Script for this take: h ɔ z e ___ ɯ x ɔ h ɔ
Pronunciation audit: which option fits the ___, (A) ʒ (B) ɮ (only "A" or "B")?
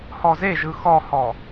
A